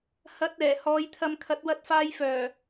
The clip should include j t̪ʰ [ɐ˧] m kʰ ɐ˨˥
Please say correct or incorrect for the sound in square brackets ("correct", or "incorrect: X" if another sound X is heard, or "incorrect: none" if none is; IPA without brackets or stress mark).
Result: correct